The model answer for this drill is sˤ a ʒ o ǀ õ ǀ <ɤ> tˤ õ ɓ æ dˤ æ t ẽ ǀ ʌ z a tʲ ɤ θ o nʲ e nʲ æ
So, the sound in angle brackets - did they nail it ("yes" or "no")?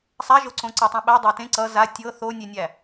yes